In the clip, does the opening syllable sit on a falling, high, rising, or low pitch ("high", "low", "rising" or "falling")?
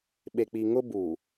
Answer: low